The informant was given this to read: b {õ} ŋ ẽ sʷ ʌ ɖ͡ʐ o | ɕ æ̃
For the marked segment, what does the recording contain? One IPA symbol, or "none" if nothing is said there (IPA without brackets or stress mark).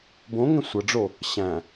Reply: õ